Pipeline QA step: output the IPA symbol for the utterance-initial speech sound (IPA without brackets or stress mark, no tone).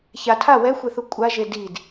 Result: ç